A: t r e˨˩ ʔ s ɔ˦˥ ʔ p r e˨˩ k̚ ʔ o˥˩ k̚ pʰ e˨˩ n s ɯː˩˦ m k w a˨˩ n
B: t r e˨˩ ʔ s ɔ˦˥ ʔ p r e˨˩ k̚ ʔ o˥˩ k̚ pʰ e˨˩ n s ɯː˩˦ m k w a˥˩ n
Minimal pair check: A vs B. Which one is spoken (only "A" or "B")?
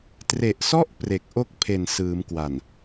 A